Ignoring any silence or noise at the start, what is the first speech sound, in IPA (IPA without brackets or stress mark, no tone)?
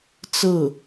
t͡s